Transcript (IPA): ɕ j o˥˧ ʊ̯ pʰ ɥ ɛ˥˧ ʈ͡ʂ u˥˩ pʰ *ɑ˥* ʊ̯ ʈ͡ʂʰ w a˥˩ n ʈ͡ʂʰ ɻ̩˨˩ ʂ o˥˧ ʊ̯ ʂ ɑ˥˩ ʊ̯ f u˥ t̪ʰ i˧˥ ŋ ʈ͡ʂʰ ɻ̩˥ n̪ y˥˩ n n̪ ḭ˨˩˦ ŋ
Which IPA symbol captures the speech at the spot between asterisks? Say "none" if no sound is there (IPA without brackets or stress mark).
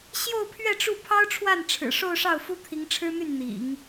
ɑ˥